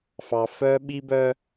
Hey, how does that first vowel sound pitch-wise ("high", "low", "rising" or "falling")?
low